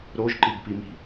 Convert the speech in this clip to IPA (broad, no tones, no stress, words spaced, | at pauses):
ɾoʒǃiɡpimi̤